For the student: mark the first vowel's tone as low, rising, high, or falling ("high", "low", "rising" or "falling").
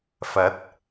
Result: rising